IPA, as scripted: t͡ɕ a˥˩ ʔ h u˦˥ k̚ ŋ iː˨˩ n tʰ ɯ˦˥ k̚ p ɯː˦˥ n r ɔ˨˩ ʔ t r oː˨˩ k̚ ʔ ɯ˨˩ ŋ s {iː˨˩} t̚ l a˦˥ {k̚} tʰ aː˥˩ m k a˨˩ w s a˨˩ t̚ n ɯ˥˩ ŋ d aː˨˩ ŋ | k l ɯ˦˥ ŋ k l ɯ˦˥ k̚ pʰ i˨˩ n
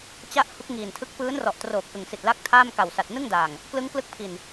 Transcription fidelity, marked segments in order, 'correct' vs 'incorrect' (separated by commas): incorrect, correct